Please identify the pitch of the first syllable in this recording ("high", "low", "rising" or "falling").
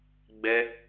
high